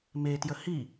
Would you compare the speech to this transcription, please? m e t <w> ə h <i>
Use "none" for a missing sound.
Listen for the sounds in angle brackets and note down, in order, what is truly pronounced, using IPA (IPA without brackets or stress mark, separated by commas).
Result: j, i